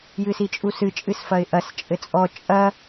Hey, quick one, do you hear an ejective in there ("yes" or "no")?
yes